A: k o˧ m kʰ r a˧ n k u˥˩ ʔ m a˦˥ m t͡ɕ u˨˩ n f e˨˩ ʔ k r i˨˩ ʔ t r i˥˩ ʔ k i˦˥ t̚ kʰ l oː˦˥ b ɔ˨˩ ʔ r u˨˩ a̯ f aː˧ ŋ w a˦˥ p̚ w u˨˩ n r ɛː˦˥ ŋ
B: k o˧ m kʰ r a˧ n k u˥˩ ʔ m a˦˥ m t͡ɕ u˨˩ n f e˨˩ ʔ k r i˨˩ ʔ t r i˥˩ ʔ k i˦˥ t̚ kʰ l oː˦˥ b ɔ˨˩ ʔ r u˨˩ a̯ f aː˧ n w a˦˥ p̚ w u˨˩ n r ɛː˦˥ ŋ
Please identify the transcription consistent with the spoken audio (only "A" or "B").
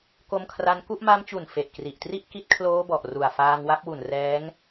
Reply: A